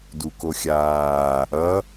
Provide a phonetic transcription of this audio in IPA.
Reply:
dukoxʲaː | ʌ

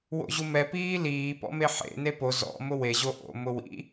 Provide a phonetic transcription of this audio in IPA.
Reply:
wo̰ʑumɛ piːliː pɔ̰meħḛ nepo zɔ̰ mʊwe ʑoʔo̰ mʊwḭ

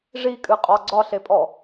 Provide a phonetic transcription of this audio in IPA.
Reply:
ʐikʼɨqʼɒ ɡ͡ǀɒɬepʼɔ

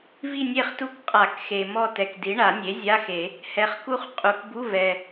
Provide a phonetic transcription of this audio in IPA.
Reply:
vi˦˨nʲe˦˨χtu˦˨k qʼa˨˩˦kxe˩ mɔ˦˨tɛ˩kdi˩˥ ɳa˨˩˦nʲe˩˥zʲa˧˥˧xe˨˩˦ | hɛ˩χku˦˨χqʼu˩kbu˧˥˧ vɛ˩

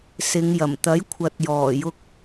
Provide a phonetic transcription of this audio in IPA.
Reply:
sɪ˨˧ŋjɐ˨˩m t̪ɐ˨˥jkʷʰɐ˨t̚jɔː˨˩jʊ˧k̚

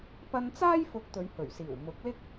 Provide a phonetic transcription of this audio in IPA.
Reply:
pɐ˧nt͡saː˥j fʊ˧k̚t̪ɵ˨˧ɥhɵ˨˩ɥsiː˨˩w mʊ˨˥k̚lɪ˥k̚

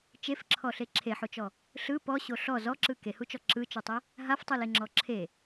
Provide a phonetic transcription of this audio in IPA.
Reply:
t͡ʃefǁʰɔɬe ǁʰeħot͡ʃɔ | ɬɯ pɔɕo ɬɔ zɔǁɯ kehut͡ʃɔ ǁɯt͡ʃotˤe | ɦaftˤɯleŋ͡ǁɔ ǁʰe

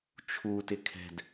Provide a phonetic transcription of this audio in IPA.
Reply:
t͡ʃʰutɪ kʰɛ̤d

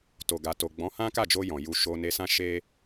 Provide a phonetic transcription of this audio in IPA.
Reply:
to˨ɡa˨to˨ ɡ͡bɔ̃˨˦hã˦ka˦˨d͡ʒo˧ jɔ̃˨ju˧ ʃo˧ne˧sã˦ ʃe˦

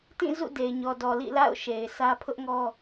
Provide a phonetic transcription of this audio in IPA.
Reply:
tĩ˦˨ zṵ˦˨de˨ɪ̯ɲɔ˨dɔ˨ lḭ˦˨la̰˦˨ʊ̯ ʃe˨ɪ̯sʰä˦ pʰʊ˦ʔŋɔ˦

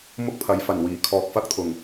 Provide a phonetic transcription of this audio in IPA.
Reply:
mʊ˥k̚pʰɐ˨˥jfɐ˨˩nwiː˨˩ kʰɔː˨k̚fɐ˥k̚t̪ʰʊ˨˩ŋ

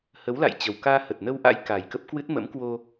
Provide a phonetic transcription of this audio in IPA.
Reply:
hə˨˦wla̰˧˨j t͡ɕə˨˩wkaː˧hə˨˩t̚ nə˧wʔa̰˧˥j ka˨˩jkə˦˥p̚kwɨ˦˥t̚ mə̰˧˥mkwo˧

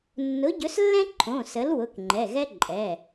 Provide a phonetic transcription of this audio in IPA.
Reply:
nːʊ˨˥ɟɵ˨˥slːɛ̃˥ ǃʰõ˩˧˩sə˨˥l wʊ˩˧˩kŋ͡ǃɛ˩˧˩ɣɛ˥ ǃʼɛ˩˧˩

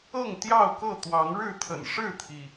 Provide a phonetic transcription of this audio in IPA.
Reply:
ɤ˥˨ŋt̪jɑ˥˨ʊ̯kɤ˥˨ t̪wɑ˨˦ŋɻɻ̩˥˨t̪ʰə̰˨˩n ʂɻ̩˥˨t̪ʰi˩

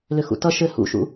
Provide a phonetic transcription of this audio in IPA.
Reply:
lʏxṵtʌ ʃɘ hṵʃṵ

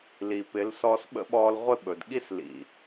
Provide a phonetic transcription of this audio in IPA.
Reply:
li˨pɪ˨˦l sɔː˧sɓə̰˦ɓɔː˧l ʁʷɪ˦ɓɵ˨d ɠi˦slḭ˨

